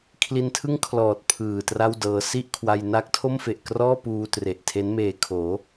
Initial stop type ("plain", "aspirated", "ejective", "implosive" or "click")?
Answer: aspirated